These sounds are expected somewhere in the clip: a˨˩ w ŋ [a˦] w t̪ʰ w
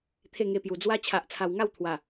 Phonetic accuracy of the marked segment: incorrect: a˥˧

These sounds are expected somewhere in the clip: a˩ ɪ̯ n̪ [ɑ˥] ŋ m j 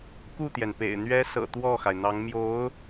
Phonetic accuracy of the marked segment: incorrect: ɑ˧˥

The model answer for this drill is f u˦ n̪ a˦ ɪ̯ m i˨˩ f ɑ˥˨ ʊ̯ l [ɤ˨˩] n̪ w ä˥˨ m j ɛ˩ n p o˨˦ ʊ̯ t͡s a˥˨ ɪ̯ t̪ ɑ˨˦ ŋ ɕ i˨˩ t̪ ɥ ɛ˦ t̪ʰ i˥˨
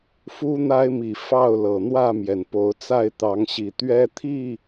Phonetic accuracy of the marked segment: correct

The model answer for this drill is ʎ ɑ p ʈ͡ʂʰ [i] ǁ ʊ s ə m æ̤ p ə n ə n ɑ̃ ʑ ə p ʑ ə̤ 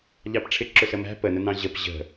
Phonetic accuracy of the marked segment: incorrect: ɪ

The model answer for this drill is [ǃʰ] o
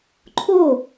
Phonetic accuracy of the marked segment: correct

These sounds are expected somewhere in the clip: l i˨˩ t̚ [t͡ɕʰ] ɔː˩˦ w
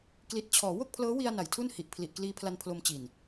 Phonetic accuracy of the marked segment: correct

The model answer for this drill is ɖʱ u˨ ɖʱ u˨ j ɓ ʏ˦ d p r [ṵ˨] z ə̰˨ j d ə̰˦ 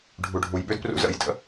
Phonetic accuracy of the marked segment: incorrect: ṵ˧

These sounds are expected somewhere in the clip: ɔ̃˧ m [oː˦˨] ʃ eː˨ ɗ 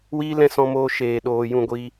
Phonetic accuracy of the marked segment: incorrect: oː˧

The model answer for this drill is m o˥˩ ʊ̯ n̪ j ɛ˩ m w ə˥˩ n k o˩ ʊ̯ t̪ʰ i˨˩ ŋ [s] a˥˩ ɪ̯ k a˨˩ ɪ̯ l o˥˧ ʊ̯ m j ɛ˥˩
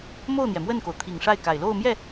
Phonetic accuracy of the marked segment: incorrect: ʂ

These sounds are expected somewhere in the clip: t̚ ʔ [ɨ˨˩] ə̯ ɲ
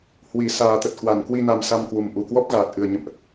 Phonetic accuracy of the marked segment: correct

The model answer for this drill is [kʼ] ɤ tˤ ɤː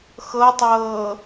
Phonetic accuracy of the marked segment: incorrect: x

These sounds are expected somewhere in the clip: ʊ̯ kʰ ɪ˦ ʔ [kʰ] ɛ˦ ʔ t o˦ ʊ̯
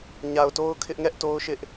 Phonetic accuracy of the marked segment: incorrect: ŋ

